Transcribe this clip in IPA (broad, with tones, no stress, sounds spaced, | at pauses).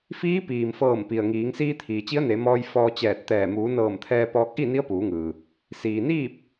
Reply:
f iː˧˥ p iː˩ m f ɤː˧˩ m p i˩ ə̯ ŋ iː˩˧ ŋ s iː˧ t̪ʰ iː˩ t͡ɕ i˧˥ ə̯ n e˩˧ m ɔː˧ j f ɔː˧ t͡ɕ ɛː˧˩ t̚ t̪ ɛː˧˩ m uː˩˧ n ɤː˧˩ m t̪ʰ ɛː˧ p ɔː˧ k̚ ʔ i˥˨ n i˧˥ ə̯ p uː˩˧ ŋ ɯː˩ | s iː˩ n iː˥˨ p̚